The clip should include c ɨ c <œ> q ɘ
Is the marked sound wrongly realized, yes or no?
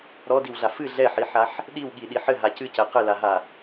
yes